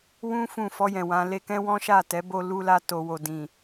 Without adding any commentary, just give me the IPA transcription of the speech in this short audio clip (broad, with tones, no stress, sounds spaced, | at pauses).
w ũ˦ f ũ˦˨ f ɔ˧ j ɛ̃˨ w ã˨˦ l e˧ k ɛ̃˦ w ɔ̃˦ ʃ a˦˨ t ɛ˨˦ b o˧ l u˧ l a˧ t o˨ w o˨ d ĩ˨